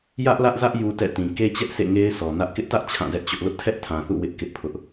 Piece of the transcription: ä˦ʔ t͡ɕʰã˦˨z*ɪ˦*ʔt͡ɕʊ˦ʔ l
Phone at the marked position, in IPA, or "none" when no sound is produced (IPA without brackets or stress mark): ɛ˦